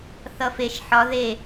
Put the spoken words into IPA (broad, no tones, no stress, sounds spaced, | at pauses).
θ ʌ f e ʃ ħ ɒ ð e